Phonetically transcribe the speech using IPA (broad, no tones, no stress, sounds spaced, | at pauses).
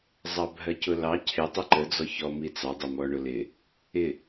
zˤ ɑ bʱ ɜ c ʊ l ɑ cʰ ɪ tˤ ʊ ǃ ə d͡z ɔ ç ɔ m i t͡s ɑ dˤ ə m ɔ ɳ ʊ l ɪ | ɪ